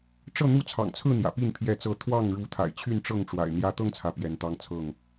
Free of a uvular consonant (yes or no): yes